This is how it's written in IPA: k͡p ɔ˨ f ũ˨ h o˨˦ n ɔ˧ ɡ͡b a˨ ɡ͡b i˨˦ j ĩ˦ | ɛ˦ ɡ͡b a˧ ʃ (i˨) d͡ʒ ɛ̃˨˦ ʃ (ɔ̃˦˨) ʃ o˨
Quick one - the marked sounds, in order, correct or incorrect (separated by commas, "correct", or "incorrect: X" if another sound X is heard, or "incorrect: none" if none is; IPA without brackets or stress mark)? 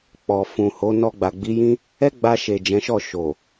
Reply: incorrect: e˨, incorrect: ɔ˦˨